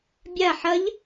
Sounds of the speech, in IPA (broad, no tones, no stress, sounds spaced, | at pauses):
bʲ a ħ ɐ ʎ